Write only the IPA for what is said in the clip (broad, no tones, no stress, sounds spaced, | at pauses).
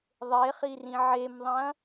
ðˤ e χ i r ĩ ʕ e m ðˤ ɐ̃